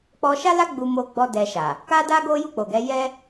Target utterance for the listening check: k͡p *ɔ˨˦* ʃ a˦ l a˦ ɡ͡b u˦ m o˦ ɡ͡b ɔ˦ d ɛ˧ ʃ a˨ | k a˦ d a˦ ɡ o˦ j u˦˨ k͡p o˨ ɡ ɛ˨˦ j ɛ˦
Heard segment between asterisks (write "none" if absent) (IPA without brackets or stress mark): ɔ˧